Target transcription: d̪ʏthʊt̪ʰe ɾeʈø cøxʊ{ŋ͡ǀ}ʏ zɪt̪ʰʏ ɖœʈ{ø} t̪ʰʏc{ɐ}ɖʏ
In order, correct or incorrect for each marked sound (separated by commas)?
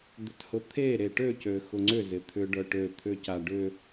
correct, correct, incorrect